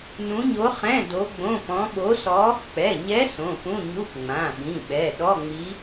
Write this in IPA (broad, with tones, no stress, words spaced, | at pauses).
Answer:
nũ˧˥ɲo˧˥χɛ̃˧˥˧ do˧˥ɡ͡bõ˧˥˧pɔ̃˧˥ ɓo˧˥sɔ˧˥ | k͡pɛ˩˧˩ɲɛ˧˥ sõ˩˧˩pũ˧˥˧ɲu˧˥˧p ŋ͡mã˩˧˩ɓĩ˩˧˩ɓɛ˩˧˩ ɗɔ˧˥˧ŋ͡mi˧˥